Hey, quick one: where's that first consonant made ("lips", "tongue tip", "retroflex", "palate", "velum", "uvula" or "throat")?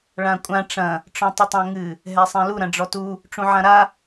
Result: retroflex